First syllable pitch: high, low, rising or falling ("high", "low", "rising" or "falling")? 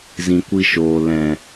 low